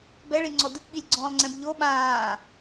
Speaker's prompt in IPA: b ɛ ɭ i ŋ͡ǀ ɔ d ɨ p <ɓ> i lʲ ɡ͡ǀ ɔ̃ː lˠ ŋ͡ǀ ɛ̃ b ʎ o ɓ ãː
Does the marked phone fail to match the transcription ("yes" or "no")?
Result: no